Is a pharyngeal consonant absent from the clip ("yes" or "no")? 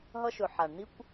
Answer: no